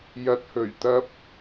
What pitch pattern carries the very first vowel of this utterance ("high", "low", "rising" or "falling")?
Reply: low